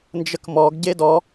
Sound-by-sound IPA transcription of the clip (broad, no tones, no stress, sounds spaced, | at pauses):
n d͡ʒ ə k m ɔ ɡ ɟ e d ɔ